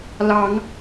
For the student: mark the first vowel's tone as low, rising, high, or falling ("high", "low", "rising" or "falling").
rising